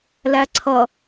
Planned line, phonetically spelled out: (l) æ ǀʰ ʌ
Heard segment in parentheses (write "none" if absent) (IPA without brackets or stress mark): l